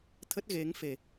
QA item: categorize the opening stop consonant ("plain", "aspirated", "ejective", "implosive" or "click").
aspirated